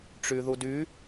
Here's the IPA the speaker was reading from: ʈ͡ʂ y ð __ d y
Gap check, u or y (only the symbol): u